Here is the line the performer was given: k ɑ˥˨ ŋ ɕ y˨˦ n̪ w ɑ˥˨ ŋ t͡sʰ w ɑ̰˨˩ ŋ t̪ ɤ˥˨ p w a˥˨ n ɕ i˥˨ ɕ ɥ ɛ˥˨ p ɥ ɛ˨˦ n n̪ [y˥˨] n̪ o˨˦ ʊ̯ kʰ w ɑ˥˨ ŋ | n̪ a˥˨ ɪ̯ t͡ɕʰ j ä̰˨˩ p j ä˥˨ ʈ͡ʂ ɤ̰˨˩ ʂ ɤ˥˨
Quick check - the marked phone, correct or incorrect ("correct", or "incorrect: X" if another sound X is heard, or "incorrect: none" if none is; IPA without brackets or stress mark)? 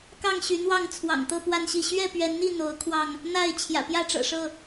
incorrect: i˥˨